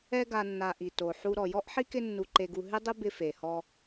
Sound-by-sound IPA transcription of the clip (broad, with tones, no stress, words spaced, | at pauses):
ɛ˦ɡa˨ nːa˨ʔi˩ to˩ ħu˨ ɾɔ˩ jɔ˥ʔħi˥kɪ˦ nːu˨ǃe˨ɡu˨ ɦɪ˥dˤɪ˥ bɪ˦fe˩hɔ˦